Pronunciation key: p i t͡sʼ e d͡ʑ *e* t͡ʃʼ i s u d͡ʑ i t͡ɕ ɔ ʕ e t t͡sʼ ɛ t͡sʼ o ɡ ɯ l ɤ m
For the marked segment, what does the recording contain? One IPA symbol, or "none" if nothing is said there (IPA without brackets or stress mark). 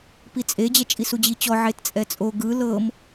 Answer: ɛ